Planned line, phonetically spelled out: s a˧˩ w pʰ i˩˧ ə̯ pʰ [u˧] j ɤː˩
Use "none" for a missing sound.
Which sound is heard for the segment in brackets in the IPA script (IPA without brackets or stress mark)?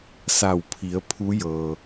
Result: u˧˥